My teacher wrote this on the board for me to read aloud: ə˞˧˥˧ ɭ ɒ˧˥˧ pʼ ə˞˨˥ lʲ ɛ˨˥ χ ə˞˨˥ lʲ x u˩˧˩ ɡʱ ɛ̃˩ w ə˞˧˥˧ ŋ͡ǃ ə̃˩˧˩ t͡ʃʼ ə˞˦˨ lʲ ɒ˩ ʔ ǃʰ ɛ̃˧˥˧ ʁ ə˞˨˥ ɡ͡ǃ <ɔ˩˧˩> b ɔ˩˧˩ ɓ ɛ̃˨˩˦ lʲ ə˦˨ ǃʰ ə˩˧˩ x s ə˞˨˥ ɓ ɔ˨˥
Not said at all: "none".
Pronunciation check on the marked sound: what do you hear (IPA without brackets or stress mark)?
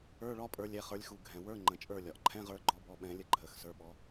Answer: ɔ˨˥